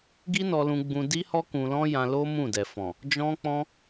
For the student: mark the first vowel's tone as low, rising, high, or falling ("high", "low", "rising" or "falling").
high